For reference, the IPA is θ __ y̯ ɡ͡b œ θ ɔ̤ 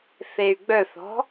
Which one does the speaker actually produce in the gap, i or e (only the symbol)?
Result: e